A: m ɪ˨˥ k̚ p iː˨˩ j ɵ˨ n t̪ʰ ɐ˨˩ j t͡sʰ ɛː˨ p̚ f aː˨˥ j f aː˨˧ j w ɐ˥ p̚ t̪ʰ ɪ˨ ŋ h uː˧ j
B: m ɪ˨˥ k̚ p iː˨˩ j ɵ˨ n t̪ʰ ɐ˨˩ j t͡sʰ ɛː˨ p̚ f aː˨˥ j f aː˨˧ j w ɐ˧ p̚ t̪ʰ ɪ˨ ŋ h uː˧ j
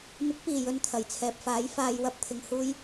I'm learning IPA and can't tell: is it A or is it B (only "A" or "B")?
B